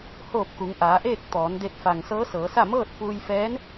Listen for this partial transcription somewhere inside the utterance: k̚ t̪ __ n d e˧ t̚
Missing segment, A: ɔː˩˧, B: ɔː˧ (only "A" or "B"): A